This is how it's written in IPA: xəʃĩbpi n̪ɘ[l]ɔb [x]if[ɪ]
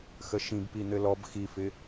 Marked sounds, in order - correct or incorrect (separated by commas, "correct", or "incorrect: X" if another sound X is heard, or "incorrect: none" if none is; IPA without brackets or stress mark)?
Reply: correct, correct, correct